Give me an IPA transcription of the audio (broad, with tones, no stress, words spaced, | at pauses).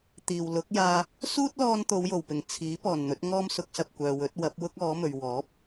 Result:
t̪iː˨˩w lʊ˨˥k̚jaː˧ | suː˥t̚lɔː˧n t̪o˨˧wjo˨˩wpɪ˨˩ŋ t͡sʰiː˨˥ pɔː˨˩nn̪ɵ˨˥t̚ŋɔː˥m sʊ˨˥k̚sɐ˨p̚ kʷœː˨wɵ˨˥t̚wɐ˨˥p̚ wʊ˥k̚ ɔː˨˥mɵ˨ɥ wɔː˨˥p̚